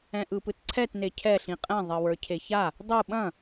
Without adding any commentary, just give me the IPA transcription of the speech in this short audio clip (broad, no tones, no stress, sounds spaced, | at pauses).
ɛ̃ ʔ ɯ p ɯ t ǀʰ ɛ t n e cʰ ɛ ɬ ĩ qʼ ɛ̃ ðˤ ɜ w ə˞ cʰ e ç a | dˤ ɯ ɓ ɐ̃